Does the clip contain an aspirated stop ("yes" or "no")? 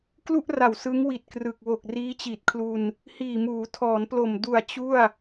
yes